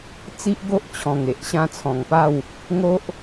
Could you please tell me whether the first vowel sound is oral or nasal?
oral